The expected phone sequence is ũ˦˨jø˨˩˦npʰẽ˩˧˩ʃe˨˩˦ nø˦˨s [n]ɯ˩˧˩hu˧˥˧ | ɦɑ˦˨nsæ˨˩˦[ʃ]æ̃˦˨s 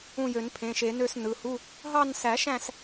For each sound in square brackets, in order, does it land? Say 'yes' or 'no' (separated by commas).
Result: yes, yes